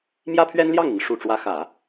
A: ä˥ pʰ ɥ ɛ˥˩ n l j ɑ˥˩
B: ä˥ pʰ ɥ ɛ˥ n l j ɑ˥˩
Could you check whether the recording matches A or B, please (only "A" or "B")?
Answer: B